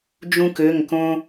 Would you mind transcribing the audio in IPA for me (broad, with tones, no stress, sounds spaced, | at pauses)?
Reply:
d͡ʒ ũ˥ k ø˧˥˧ ŋ k õ˥